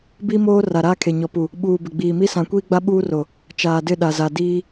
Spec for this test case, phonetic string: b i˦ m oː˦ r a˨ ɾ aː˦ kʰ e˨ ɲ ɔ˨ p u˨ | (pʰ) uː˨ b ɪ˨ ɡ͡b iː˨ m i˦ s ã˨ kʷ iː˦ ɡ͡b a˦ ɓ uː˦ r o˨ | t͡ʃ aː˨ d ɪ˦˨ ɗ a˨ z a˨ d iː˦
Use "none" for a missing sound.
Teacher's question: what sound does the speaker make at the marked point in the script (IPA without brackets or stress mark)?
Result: ɓ